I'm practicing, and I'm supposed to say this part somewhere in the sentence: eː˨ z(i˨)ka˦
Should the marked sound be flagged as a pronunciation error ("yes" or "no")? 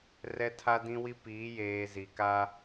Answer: no